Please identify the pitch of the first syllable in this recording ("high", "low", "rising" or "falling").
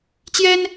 high